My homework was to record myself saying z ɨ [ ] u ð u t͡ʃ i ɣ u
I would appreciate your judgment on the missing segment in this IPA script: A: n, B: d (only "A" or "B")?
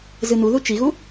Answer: A